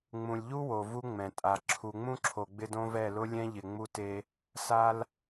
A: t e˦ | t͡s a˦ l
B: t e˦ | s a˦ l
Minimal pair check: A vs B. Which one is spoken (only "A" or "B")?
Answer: B